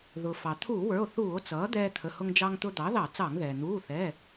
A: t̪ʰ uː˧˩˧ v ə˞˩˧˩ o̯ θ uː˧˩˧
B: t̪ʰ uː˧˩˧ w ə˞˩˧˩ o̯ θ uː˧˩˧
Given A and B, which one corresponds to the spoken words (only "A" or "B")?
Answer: B